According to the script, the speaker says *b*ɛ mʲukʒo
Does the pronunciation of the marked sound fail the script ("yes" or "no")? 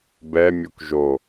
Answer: no